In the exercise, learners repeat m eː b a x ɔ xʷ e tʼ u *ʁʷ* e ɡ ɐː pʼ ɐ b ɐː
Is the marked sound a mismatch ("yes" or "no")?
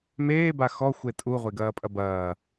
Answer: no